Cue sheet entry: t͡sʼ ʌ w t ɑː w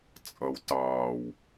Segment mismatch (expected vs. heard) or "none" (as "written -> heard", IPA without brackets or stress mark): none